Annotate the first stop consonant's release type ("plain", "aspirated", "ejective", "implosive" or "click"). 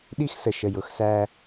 implosive